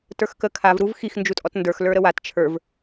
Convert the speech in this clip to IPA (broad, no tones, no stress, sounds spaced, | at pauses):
t ə˞ x k ə kʰ a v ɾ u v x i x n d͡ʒ u tʼ ɔ t n d ə˞ x l ə˞ ɾ ə w a t t͡ʃʰ ə˞ v